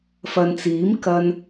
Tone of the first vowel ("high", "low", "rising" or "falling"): low